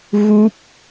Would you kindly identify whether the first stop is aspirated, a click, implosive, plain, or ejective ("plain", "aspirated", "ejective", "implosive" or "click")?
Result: plain